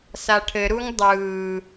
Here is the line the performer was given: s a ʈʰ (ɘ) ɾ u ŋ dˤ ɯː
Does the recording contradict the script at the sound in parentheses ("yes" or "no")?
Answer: no